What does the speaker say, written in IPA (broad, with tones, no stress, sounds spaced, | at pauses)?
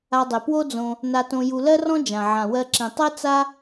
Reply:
a˧ dˤ e˨ p w o˦ d͡z õ˧ | n a˧ t õ˧ j u˧ l ɜ˦ r ɔ̃˦ d͡ʒ ã˨ ʕ ã˨ w ɜ˧ ǁ ĩ˨ tˤ ɜ˦ t͡s a˦